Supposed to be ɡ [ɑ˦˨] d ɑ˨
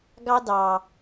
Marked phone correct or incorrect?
incorrect